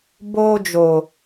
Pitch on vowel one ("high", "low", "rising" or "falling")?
high